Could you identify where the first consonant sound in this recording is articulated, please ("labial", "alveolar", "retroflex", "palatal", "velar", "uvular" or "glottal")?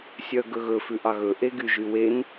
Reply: alveolar